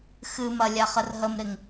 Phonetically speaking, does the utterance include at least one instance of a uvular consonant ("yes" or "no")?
yes